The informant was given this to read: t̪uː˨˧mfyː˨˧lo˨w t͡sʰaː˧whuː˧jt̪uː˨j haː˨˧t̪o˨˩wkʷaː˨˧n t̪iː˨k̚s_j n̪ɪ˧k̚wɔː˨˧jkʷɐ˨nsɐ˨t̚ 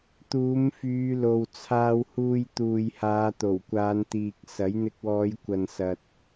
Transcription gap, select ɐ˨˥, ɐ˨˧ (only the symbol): ɐ˨˥